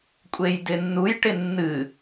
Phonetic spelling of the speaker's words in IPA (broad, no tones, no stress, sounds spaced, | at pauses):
kʷʼ e j d ɪ nː u j ʈ ɪ nː ɨ